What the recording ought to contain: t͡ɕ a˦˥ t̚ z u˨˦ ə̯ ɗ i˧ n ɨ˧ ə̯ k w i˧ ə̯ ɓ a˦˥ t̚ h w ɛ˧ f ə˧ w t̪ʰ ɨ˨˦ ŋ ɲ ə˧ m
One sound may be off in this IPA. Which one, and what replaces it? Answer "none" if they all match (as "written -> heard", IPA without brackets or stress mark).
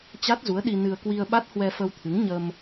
none